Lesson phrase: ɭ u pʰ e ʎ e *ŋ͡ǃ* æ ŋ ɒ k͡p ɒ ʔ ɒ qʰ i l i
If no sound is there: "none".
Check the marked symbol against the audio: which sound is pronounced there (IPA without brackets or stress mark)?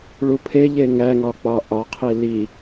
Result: ŋ